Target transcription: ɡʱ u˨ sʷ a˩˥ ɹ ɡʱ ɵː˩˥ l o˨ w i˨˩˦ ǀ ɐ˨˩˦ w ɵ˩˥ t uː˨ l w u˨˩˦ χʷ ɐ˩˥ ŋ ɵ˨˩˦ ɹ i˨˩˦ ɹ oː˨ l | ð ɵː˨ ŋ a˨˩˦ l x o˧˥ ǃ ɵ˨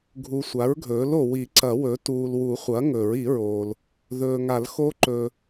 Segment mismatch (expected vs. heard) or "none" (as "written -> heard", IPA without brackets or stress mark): none